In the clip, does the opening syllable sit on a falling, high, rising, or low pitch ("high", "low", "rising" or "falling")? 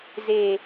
low